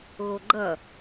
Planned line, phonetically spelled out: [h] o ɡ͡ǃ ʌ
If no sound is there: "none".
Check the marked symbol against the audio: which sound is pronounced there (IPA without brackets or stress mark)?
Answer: ɣ